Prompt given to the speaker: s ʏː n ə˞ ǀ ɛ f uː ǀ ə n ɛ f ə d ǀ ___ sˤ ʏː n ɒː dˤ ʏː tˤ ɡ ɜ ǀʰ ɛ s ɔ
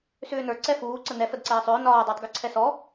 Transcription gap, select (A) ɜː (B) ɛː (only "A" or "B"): B